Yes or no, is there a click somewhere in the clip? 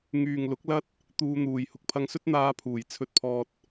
no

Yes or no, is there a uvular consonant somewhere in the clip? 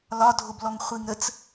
yes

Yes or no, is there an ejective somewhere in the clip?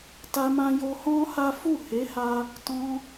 no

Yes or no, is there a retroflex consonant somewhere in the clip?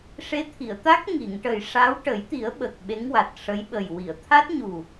yes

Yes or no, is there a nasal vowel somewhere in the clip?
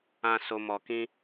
yes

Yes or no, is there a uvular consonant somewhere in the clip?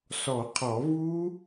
yes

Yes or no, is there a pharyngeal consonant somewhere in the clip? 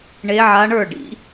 yes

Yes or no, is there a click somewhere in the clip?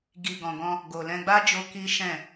no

